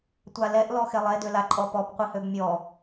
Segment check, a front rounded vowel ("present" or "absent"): present